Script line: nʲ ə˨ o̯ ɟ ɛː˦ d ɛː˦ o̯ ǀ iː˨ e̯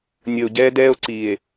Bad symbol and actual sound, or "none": none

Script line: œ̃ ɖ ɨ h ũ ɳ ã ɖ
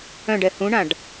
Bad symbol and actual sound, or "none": ɨ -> ɛ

